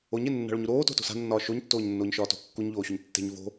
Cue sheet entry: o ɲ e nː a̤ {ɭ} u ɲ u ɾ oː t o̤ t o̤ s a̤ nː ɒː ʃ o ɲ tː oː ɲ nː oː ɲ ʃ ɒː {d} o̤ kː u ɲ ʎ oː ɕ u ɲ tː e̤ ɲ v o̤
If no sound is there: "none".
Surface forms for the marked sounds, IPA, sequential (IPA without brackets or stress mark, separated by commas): ɭ, t